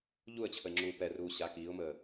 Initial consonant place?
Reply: palatal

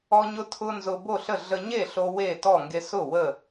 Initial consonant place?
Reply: palatal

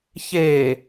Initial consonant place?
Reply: palatal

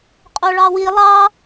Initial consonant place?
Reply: uvular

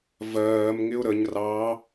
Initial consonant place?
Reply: labial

